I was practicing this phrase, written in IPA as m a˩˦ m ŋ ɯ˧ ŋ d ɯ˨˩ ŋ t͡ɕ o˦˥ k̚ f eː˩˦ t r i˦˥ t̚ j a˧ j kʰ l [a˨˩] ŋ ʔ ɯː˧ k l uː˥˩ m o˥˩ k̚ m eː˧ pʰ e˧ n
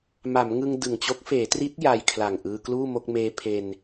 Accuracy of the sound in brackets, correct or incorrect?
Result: correct